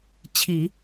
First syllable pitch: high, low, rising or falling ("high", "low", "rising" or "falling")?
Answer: low